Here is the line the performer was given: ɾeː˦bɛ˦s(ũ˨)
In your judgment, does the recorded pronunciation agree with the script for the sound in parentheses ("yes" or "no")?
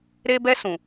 yes